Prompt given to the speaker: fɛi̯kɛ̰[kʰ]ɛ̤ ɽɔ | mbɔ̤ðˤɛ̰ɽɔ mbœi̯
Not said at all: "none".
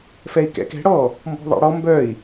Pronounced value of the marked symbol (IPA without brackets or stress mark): k